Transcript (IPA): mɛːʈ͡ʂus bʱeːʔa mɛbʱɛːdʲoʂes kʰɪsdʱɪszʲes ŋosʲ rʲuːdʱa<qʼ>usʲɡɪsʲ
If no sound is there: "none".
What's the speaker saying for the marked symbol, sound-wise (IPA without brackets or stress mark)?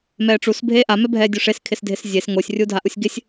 ʔ